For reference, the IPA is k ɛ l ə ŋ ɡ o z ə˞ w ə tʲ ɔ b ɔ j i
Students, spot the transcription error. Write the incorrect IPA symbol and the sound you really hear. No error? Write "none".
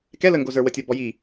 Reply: none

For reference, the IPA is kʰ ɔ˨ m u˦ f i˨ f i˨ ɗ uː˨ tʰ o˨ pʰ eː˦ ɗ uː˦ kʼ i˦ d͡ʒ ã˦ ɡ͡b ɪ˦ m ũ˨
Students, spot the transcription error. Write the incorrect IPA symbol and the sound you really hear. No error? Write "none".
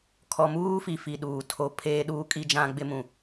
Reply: u˦ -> uː˦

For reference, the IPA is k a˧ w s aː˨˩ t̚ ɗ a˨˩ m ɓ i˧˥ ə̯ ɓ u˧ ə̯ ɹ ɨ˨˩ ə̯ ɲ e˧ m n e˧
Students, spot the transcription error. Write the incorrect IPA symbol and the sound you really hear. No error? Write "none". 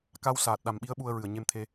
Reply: n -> t̪ʰ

